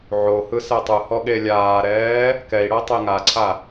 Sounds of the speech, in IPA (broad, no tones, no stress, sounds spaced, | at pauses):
ʕ o h ɯ s ɛ tˤ ɯ h ɔ ɠ e lʲ aː ɾ ɛː | k ɛ i̯ ɽ ɤ tˤ e ŋ a ǀʰ a